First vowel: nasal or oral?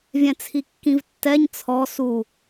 nasal